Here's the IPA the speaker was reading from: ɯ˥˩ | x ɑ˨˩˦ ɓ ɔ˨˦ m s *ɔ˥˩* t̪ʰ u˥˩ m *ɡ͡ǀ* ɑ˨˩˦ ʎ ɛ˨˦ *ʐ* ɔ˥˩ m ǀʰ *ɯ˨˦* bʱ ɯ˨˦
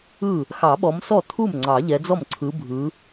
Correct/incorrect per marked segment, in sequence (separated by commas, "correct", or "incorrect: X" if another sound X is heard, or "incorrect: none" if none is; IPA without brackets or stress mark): correct, incorrect: ŋ͡ǀ, incorrect: d͡z, correct